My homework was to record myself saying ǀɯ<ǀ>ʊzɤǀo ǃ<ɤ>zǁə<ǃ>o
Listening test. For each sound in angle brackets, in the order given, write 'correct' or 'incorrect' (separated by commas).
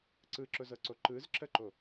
incorrect, incorrect, correct